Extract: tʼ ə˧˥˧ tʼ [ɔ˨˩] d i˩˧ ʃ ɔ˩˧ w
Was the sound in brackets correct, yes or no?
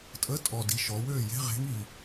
yes